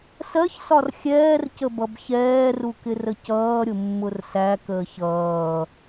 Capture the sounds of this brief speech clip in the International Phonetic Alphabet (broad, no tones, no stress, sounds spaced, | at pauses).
s ɜ ç s ɒ r xʲ ɛː r c ə b ʌ b ç ɛː r u k ɪ r ə c ʌː ɾʲ ʊ mː ʊ r s æ k əː ç ʌː